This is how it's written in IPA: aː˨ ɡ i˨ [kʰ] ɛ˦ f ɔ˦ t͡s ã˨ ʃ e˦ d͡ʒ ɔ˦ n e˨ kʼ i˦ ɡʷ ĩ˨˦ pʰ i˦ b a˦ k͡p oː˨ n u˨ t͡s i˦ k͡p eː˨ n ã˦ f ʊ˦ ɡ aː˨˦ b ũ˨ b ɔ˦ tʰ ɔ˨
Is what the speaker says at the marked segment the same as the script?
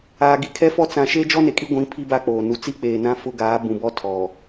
yes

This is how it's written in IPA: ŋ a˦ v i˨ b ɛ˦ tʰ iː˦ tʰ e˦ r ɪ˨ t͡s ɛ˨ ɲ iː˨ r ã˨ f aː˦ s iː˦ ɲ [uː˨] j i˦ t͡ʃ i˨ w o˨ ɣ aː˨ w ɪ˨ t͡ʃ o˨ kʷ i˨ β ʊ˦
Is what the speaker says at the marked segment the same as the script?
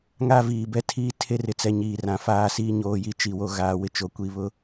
no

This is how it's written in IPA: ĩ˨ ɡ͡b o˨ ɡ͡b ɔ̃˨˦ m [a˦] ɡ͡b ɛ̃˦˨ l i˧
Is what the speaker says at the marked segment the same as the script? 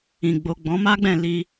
yes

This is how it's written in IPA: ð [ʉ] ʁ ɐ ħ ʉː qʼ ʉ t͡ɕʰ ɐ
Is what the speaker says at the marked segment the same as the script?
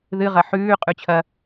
no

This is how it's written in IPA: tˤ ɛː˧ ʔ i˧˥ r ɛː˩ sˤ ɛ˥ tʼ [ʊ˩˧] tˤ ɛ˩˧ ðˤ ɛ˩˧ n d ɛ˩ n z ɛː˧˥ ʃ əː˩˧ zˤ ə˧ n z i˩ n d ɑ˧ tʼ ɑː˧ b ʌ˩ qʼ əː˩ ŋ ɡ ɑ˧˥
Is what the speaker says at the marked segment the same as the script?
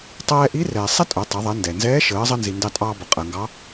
yes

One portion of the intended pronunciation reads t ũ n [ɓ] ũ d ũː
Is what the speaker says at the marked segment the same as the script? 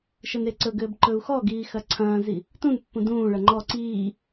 no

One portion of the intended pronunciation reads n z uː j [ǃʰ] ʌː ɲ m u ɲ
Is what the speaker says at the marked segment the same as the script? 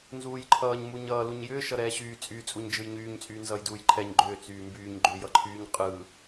yes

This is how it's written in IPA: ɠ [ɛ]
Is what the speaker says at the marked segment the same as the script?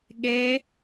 no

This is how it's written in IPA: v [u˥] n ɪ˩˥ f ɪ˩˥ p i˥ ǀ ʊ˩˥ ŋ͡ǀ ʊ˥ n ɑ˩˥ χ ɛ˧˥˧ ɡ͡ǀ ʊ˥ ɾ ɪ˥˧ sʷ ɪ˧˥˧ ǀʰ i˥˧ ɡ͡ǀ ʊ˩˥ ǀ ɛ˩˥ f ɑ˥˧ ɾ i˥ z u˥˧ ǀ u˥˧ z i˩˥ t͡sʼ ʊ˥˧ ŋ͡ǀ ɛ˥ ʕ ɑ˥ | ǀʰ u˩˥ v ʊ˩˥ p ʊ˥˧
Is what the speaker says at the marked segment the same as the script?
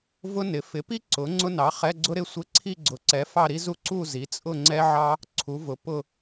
no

